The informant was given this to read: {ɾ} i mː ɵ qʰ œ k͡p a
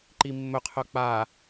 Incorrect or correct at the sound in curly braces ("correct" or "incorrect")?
incorrect